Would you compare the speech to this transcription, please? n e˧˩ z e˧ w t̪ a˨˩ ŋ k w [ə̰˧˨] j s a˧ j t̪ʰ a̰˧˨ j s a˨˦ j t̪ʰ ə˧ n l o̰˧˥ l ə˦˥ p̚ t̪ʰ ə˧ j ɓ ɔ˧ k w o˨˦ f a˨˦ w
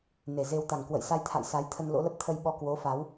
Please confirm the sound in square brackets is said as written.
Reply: yes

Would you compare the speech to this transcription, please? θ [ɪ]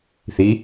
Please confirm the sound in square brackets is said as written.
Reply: no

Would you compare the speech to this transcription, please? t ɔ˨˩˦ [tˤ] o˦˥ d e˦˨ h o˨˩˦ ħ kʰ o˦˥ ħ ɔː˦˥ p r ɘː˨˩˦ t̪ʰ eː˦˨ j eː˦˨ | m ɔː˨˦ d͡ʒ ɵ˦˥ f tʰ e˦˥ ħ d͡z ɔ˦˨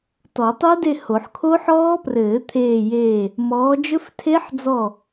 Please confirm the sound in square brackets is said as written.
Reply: yes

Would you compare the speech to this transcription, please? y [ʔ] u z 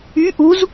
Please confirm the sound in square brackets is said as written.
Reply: yes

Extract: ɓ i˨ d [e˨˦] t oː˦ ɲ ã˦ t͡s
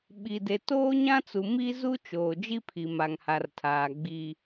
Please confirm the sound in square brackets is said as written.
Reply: no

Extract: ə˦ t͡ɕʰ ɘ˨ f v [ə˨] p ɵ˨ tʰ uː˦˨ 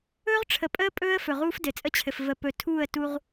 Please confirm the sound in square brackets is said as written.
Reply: yes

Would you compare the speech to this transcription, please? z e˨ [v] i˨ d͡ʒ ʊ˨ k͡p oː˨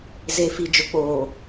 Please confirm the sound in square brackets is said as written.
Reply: no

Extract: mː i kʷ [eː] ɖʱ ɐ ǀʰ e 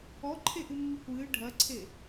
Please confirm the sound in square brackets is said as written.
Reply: no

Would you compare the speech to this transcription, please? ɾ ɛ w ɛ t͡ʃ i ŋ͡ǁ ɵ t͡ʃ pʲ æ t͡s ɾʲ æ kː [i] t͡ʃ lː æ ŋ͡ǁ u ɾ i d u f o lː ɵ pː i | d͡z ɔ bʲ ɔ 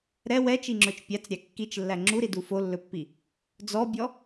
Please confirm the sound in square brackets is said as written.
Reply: yes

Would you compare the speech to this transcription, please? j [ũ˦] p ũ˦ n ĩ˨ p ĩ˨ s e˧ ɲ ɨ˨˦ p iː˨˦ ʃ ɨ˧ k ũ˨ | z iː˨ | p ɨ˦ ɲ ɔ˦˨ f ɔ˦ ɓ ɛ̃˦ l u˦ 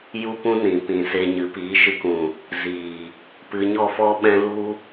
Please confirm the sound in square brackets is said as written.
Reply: no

